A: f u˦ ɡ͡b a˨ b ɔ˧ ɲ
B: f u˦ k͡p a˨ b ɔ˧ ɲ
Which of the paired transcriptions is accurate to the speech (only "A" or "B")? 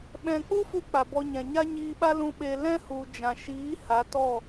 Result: B